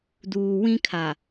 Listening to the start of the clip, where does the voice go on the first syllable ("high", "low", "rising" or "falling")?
low